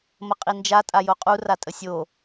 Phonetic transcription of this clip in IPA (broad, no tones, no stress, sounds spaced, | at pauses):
m ə qʼ i n d͡ʒ a tʼ a j o qʼ u r a tʼ ə sʲ o